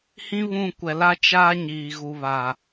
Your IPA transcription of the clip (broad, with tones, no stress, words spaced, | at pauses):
hĩ˦βũ˦˨kʷɛ˨ la˦ t͡ʃaː˦ɲiː˨ ɣu˨βaː˨